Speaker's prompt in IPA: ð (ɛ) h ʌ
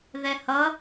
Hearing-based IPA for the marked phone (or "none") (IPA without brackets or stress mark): ɛ